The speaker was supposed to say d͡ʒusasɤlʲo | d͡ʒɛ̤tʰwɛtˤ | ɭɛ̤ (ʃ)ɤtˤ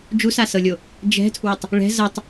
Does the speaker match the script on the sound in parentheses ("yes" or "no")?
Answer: no